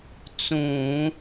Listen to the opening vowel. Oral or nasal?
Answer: nasal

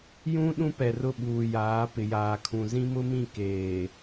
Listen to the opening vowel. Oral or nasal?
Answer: nasal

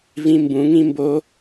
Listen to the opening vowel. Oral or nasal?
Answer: nasal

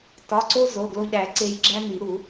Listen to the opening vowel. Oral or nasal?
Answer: oral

